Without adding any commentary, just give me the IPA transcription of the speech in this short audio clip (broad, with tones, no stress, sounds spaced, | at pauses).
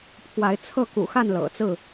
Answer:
pʰ w a˨˦ ɪ̯ t͡sʰ ɤ˥˨ k ṵ˨˩ x a˥˨ n l ɤ̰˨˩ t͡s ɹ̩˥˨